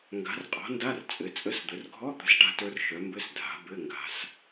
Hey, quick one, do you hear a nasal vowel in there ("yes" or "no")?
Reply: no